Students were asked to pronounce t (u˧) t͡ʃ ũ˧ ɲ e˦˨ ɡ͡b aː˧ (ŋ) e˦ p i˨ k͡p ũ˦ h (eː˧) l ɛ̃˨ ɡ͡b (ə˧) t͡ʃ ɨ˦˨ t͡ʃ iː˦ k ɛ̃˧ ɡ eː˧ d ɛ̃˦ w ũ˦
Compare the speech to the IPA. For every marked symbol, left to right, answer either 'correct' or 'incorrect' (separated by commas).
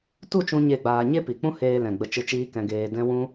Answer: incorrect, incorrect, correct, correct